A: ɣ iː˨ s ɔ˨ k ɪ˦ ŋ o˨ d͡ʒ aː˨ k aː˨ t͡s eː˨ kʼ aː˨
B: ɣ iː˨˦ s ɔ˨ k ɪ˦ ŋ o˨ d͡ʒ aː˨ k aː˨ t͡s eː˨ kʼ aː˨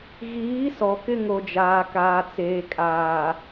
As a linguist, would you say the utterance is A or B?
B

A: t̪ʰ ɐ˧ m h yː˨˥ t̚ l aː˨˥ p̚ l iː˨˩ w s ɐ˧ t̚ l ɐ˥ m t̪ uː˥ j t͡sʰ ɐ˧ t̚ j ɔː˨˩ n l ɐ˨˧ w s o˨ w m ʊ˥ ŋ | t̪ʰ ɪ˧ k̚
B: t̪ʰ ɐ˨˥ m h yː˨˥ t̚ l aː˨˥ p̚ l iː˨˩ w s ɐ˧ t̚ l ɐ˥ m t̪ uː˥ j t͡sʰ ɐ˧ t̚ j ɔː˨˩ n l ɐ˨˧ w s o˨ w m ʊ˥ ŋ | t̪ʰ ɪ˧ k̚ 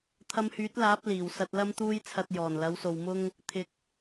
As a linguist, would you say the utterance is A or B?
A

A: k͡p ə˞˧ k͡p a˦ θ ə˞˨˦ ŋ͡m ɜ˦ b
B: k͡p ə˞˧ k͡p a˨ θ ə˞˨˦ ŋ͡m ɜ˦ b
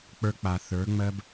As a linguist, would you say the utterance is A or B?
B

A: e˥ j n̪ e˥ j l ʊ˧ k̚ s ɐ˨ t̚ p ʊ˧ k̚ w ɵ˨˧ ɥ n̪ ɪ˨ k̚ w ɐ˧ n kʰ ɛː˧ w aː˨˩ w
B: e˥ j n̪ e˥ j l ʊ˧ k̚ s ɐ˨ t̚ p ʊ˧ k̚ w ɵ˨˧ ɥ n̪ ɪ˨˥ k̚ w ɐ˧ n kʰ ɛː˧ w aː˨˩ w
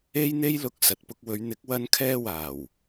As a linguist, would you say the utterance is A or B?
B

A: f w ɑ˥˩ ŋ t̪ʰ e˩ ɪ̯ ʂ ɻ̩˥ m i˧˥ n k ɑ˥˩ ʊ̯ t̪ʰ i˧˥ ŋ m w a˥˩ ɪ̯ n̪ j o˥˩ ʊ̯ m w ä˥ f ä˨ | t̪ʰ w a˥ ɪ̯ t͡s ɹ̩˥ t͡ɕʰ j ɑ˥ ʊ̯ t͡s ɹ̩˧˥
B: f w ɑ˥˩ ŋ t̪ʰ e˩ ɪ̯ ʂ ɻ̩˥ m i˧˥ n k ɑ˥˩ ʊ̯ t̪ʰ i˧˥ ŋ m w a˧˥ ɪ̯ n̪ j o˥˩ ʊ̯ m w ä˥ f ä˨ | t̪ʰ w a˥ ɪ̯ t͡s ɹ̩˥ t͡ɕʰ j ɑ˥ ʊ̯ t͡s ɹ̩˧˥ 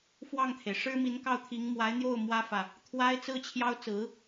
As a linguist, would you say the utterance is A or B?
B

